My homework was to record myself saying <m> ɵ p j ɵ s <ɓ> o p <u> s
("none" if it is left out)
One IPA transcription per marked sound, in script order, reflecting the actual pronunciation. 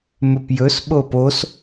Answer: m, ɓ, o

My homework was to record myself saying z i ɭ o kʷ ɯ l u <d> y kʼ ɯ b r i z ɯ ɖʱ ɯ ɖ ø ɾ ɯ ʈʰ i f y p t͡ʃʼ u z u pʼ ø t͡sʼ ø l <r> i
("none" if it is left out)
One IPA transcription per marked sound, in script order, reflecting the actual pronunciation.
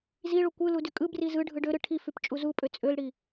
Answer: d, ɽ

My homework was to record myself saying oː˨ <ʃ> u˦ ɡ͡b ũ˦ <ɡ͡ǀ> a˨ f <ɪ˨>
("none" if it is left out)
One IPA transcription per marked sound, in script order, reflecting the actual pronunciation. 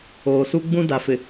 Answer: s, d, ɪ˨

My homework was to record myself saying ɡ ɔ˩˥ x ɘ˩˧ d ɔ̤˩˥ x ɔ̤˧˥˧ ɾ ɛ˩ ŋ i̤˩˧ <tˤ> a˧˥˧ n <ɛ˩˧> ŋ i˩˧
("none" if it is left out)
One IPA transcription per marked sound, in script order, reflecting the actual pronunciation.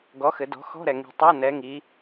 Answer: tˤ, ɛ˩˧

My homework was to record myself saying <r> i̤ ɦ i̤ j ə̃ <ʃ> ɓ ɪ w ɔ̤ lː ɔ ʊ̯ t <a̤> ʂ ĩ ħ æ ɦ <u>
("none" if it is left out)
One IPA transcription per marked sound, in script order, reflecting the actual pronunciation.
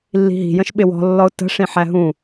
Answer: lː, ʃ, ə̤, ũ

